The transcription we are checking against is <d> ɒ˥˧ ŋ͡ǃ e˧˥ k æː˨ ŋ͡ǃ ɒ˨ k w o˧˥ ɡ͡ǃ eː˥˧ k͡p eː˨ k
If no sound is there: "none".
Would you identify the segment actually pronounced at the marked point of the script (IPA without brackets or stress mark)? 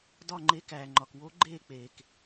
d